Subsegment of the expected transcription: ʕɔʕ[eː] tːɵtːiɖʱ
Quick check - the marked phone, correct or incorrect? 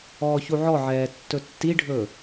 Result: incorrect